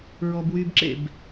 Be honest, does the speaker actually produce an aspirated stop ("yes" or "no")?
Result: no